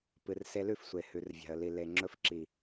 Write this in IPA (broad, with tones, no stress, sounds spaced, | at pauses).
p ɨ˨ r s e˧ l ʉ˦˨ f sʷ e˨ h ʉ˧ r vʲ a̤˧ ə̯ l i˧ l e˨ ŋ͡ǁ ɵ˧ f ǁ i˨